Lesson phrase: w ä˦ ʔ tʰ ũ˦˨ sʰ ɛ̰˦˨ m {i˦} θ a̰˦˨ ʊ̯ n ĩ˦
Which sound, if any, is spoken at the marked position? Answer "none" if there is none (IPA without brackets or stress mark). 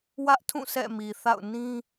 i˨